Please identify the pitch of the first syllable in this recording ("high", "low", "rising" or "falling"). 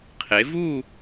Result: rising